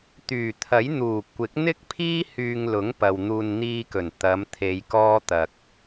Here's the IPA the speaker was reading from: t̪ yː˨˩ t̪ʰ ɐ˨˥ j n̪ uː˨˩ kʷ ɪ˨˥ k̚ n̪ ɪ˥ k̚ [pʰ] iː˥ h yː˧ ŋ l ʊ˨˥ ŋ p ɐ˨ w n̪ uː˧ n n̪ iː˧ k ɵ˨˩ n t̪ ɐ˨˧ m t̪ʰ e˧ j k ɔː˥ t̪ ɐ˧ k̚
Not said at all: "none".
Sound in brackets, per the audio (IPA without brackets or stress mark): pʰ